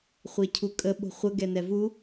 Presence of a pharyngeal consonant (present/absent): absent